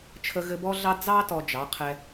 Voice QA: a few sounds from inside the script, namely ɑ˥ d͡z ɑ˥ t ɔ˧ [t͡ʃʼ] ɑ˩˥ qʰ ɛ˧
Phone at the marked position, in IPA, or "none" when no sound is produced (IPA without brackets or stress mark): d͡ʒ